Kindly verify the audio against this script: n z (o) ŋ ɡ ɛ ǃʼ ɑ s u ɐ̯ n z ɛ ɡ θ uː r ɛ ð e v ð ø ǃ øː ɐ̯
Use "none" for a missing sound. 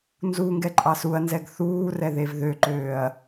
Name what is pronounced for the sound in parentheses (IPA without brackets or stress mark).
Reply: u